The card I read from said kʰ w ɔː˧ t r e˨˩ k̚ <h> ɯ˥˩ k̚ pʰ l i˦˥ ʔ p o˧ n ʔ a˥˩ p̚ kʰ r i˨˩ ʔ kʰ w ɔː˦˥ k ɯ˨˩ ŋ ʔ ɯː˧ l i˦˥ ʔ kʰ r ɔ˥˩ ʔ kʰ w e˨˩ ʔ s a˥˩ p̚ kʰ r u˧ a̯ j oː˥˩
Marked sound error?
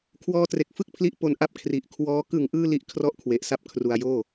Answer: yes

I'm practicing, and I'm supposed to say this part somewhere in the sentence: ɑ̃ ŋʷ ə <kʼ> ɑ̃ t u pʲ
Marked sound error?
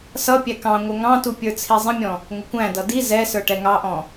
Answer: yes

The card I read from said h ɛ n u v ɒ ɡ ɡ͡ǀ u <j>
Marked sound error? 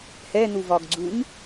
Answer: yes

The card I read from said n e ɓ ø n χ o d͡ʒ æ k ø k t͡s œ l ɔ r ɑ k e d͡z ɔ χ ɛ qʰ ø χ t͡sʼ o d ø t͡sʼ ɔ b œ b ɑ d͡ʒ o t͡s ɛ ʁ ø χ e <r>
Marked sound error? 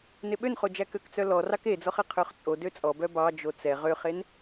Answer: yes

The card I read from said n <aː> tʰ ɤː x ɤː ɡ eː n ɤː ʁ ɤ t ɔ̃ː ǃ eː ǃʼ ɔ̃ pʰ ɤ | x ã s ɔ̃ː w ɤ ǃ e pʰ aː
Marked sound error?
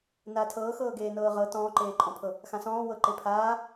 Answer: no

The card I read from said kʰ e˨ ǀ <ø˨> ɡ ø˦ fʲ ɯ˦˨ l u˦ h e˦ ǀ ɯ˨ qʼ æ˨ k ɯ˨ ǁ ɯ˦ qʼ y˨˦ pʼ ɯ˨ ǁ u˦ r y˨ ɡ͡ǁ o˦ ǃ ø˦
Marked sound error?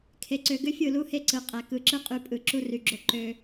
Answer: no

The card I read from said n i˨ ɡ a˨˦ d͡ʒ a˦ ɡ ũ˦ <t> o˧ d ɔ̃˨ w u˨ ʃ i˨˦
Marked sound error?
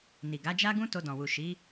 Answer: no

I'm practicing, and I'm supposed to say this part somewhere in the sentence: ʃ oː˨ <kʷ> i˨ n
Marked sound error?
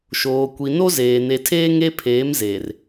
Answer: no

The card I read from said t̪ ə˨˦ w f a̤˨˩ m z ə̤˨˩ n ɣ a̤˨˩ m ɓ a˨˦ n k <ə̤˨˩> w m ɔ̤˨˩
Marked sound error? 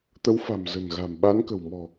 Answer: no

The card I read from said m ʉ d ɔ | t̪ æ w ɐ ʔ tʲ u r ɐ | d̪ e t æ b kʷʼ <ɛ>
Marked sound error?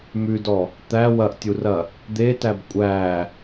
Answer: yes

